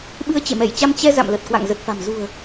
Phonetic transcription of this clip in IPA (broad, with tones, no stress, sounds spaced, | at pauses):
ɓ ɨ˧ ə̯ t͡ɕ ḛ˧˨ m ɛ˧˩ j t͡ɕ a˧ m t͡ɕ ɛ˧ z a̰˧˨ m l ə˨˩ t̚ k w a̰˧˨ ŋ z ə˨˩ t̚ f a̤˨˩ m z ṳ˨˩ ə̯